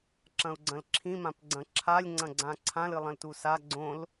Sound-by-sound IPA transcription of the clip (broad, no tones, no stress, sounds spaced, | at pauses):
ǁ ɐ̃ u̯ ɡ͡ǀ ɐ̃ l ǁʰ ĩ m ã p ɡ͡ǀ ɐ̃ ǁʰ a lʲ ŋ͡ǀ ɐ̃ ɡ͡ǀ ã ǀʰ ã l ɨ lˠ ɐ̃ l t u s a ɡ͡ǀ õ l